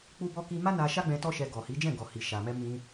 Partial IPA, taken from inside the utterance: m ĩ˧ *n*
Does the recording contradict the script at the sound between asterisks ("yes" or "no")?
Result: yes